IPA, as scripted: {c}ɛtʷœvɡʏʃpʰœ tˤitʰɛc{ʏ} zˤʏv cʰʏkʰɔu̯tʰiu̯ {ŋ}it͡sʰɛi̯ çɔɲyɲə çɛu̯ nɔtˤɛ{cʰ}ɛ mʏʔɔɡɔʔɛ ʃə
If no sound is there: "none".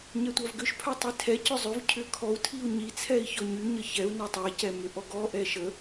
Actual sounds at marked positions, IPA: ɲ, ʏ, ɲ, c

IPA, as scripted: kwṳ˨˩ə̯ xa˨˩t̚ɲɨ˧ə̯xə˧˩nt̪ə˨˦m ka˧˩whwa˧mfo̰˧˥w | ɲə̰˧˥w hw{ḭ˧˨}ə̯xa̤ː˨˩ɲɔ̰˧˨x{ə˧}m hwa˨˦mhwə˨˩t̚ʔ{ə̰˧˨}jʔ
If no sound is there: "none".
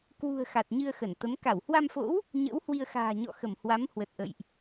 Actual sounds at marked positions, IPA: i˧, ə˧˩, ə̰˧˨

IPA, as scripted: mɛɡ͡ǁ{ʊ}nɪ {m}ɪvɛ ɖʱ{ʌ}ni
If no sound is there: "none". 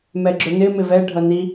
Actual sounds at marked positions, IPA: ʊ, m, ʌ

